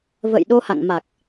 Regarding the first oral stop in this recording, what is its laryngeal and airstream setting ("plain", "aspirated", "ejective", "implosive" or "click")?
implosive